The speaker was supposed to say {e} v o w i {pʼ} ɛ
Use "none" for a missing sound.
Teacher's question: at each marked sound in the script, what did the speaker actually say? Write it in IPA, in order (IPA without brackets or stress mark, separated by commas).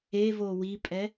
e, pʼ